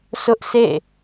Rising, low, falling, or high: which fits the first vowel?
high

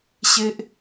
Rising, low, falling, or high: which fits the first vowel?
high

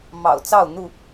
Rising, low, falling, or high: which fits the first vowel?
low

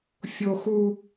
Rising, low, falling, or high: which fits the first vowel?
high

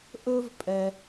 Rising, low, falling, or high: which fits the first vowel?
high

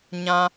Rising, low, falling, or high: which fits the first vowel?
high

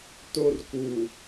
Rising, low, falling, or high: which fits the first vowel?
high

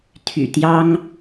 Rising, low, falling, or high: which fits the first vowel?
low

